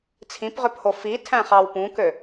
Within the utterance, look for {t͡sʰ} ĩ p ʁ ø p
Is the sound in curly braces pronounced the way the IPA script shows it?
yes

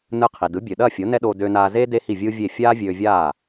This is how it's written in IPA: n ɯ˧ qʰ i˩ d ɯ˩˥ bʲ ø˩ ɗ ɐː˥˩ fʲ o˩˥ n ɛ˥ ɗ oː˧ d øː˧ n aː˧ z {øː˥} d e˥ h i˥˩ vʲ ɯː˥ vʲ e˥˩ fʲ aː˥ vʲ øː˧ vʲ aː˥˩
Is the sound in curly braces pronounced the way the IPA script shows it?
no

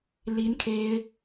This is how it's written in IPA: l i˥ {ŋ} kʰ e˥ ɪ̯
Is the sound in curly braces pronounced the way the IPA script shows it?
no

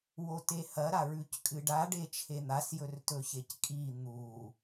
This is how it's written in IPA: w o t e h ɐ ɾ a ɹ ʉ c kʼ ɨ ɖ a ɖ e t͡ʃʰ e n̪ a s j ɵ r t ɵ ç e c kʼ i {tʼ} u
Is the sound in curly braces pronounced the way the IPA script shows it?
no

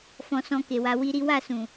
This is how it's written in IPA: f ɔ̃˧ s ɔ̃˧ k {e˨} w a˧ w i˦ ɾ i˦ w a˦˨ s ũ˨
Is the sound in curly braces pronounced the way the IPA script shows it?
yes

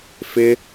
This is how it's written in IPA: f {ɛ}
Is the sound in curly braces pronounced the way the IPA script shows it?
no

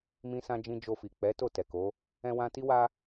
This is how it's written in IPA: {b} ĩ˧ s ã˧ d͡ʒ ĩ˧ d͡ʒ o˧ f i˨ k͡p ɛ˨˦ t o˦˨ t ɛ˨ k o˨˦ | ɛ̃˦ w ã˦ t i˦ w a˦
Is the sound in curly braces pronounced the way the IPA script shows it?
no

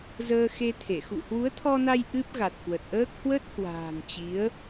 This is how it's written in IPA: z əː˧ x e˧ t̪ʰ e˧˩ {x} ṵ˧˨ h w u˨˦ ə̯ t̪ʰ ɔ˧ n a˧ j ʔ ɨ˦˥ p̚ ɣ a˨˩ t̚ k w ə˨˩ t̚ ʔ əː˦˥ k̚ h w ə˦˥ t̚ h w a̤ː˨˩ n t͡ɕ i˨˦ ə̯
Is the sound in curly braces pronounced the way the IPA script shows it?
yes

